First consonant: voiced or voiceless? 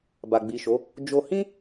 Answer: voiced